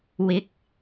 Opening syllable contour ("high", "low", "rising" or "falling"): rising